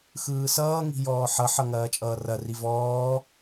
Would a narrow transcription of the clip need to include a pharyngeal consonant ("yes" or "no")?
yes